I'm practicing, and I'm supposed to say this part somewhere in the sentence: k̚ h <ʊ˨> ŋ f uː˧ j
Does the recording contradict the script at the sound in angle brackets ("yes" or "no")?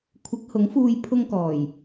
yes